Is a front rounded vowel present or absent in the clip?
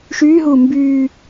present